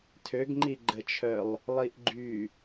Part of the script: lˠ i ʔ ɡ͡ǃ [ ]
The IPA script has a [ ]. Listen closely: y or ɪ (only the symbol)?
y